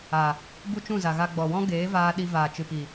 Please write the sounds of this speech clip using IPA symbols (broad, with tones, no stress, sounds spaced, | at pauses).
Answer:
a˨ | b u˦ t͡ʃ ũ˦˨ z a˨ ɣ a˧ ɡ͡b ɔ˨ w ɔ̃˦ ɡ eː˨˦ v aː˧ ɗ i˧ v aː˨ t͡ʃ ɨ˨ p i˨